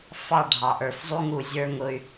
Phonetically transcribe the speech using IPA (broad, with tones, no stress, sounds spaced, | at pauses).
f ɑ˦˨ ɖʱ ɑ˨ ʔ ə˞˨ f zˤ u˦ ŋ u˨ zʲ ə˞˦ ŋ ʊ˦ y̯